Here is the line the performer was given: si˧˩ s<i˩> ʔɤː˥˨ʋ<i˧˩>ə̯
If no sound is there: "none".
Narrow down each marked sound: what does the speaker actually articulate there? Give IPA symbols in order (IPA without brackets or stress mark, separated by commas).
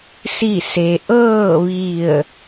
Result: e˩, i˧˩